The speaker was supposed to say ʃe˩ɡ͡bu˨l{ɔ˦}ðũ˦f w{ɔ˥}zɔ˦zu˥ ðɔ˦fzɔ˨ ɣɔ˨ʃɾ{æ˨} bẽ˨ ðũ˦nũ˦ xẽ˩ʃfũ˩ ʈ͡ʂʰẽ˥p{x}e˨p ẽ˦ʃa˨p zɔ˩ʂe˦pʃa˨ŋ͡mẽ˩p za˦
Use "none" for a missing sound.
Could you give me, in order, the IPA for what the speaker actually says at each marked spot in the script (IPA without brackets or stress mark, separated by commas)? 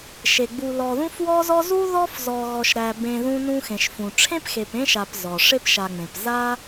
ɔ˨, ɔ˦, æ˨, x